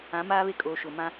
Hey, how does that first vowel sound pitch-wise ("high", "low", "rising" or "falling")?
rising